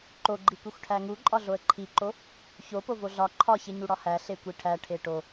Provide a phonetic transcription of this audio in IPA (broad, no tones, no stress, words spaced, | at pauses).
ǃoɡ͡ǃikʷexʷ ʈʰæŋuǃʼɒ ɮoə̯ǃʰiǃo | ço povoɮɒ ǃʰɒçe ɲuɽɒhæ ɬekʷiʈʰæʈʰe ʈo